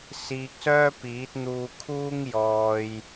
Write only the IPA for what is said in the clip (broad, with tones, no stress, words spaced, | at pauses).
siː˧k̚sœː˥ piː˨˥t̚n̪uː˧kʰuː˥ŋ jɔː˧j